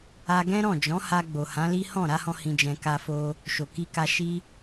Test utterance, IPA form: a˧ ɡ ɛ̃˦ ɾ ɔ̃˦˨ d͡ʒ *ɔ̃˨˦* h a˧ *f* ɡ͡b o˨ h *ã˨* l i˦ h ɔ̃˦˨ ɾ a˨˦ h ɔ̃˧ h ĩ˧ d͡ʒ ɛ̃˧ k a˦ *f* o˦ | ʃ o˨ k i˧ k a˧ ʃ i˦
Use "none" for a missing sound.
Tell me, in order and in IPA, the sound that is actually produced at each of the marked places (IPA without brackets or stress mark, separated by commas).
ɔ̃˨˦, none, ã˨˦, f